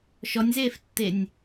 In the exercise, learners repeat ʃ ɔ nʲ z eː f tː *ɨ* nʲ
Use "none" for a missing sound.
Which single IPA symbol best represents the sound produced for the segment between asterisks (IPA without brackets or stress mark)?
e